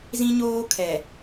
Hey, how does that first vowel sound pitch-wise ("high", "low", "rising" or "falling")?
high